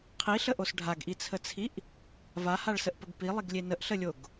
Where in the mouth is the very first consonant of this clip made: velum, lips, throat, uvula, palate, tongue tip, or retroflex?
uvula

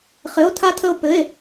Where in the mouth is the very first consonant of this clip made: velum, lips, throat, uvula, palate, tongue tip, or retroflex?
uvula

